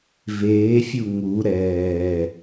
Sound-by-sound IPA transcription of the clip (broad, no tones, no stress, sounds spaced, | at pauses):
v eː fʲ u ŋ u ɾ ɛː